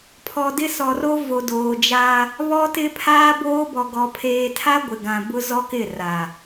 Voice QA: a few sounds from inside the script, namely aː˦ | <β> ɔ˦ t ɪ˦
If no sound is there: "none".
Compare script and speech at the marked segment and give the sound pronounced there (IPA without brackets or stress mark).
β